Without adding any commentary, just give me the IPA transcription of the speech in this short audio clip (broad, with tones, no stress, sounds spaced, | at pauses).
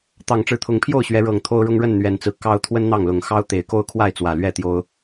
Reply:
t̪ ɑ˨˩ ŋ ʈ͡ʂ ɻ̩˨˦ t̪ʰ ʊ˨˦ ŋ pʰ j o˥˨ ʊ̯ ɕ ɥ ɛ˨˦ ɻ ɤ˨˩ ŋ t̪ʰ o˦ ʊ̯ ɻ ʊ˦ ŋ ɻ ə˥˨ n n̪ ɥ ɛ˨˩ n t͡s ɹ̩˨˦ k ɑ˦ ʊ̯ t̪ʰ w ə˦ n n̪ ɑ˥˨ ŋ l ʊ˨˩ ŋ x ɑ˦ ʊ̯ t̪ e˨˦ ɪ̯ k o˦ ʊ̯ kʰ w a˥˨ ɪ̯ t͡s w ä˨˩ l ɥ ɛ˥˨ t̪ j o˦ ʊ̯